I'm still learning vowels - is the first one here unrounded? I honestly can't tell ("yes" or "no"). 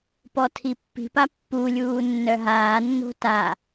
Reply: no